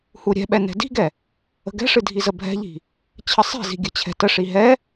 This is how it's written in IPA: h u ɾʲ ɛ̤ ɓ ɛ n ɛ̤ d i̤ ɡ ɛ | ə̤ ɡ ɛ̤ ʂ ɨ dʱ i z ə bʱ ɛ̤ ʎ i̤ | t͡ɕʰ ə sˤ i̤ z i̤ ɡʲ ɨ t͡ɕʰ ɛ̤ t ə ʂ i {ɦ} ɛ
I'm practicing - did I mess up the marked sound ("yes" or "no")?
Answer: no